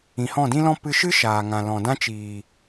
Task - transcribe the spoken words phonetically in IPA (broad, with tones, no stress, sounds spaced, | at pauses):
ĩ˨ h ɔ̃˦˨ d ĩ˦ l ɔ̃˦ p ɨ˧ ʃ ɨ˦ ʃ aː˨ ŋ ã˨ l ɔ̃˨ d ã˦ t͡ʃ iː˨